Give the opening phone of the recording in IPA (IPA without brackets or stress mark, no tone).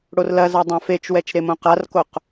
ɽ